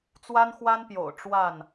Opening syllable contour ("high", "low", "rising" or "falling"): high